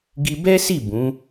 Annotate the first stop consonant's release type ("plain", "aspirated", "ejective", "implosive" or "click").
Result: plain